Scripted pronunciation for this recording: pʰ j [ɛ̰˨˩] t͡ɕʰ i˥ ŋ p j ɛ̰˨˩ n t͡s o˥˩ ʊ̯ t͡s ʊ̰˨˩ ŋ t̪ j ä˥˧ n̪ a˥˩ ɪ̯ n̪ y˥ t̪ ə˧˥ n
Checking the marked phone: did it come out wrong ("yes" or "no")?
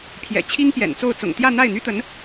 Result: no